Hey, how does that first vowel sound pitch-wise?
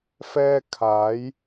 high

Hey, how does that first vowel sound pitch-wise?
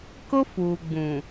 high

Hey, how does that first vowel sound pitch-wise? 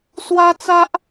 high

